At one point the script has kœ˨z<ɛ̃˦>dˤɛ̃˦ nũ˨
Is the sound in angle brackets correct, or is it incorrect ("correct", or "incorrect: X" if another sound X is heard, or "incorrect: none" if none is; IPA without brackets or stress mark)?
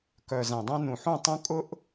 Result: incorrect: ɛ̃˨